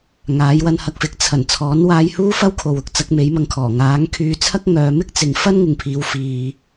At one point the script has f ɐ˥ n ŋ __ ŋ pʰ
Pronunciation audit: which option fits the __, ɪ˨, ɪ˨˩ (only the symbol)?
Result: ɪ˨